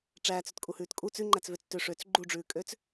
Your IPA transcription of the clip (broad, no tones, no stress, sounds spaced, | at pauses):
ʈ͡ʂ æː t͡s ʉ t kʼ u h ʉː t kʼ u t͡s ʉ ŋ͡ǃ æ t͡s v ø t͡s t ø ʂ ø t͡s ɡ͡ǃ u ɖ͡ʐ ʉː kʼ ø t͡s